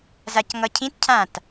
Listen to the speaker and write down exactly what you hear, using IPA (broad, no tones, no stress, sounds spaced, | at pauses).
z a c ŋ ʌ cʰ ĩ t cʰ ã t